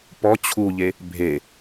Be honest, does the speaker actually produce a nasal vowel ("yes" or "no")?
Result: no